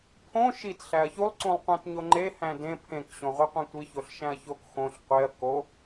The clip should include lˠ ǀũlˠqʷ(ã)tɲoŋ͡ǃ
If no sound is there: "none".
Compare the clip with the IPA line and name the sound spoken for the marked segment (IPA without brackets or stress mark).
æ̃